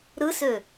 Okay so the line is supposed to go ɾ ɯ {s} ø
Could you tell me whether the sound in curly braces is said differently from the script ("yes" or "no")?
no